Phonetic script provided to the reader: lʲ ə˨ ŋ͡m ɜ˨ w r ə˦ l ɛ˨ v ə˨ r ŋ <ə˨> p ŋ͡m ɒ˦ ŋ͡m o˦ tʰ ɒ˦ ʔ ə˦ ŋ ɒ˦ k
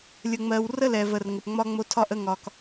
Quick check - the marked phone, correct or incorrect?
correct